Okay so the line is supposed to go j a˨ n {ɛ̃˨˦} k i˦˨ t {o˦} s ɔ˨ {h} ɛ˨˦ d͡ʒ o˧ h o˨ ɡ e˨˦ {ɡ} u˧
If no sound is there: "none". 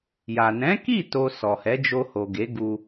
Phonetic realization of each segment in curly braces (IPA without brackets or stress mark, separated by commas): ɛ̃˨˦, o˧, h, ɡ